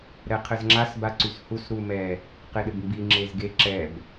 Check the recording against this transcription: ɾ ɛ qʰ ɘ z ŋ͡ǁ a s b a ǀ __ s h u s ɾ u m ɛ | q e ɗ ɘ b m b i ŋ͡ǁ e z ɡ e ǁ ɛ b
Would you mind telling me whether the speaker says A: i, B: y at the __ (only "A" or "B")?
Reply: B